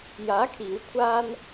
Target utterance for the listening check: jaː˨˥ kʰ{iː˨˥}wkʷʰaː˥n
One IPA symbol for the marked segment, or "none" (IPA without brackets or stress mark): iː˨˥